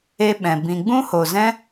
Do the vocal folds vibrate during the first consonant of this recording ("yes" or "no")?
yes